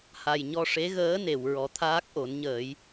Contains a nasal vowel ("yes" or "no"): no